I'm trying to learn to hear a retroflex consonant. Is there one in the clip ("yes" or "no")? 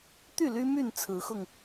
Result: no